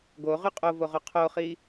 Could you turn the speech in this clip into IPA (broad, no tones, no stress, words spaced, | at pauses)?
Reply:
ɡoʁy qʼovoʁo qʰoχi